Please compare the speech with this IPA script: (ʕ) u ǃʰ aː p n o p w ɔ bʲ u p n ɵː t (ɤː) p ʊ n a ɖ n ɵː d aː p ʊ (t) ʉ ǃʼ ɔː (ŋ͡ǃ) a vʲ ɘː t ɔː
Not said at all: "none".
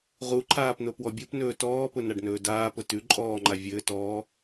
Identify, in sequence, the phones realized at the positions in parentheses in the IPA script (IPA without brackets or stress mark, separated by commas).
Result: ʁ, ɔː, t, ŋ͡ǃ